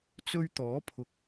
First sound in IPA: t͡s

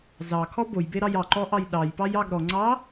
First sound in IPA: z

